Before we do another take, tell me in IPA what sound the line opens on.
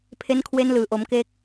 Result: pʰ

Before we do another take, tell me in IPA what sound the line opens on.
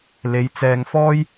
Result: l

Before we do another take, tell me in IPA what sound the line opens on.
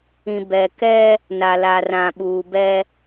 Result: ĩ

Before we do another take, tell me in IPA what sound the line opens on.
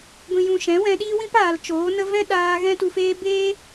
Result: ɡʷ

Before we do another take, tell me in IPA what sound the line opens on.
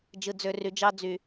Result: d͡ʒ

